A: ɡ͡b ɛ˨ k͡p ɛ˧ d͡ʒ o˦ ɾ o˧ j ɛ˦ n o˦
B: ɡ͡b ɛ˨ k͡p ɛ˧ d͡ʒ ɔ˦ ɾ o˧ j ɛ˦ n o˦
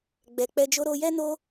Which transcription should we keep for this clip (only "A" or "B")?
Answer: A